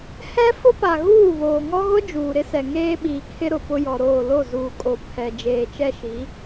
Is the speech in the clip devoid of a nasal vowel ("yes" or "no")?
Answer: yes